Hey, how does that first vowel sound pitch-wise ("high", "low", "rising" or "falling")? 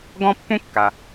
high